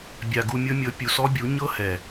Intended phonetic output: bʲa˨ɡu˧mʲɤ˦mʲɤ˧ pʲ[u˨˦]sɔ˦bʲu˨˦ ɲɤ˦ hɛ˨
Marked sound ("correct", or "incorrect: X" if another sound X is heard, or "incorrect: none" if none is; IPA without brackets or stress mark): incorrect: u˨